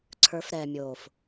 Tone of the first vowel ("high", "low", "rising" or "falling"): rising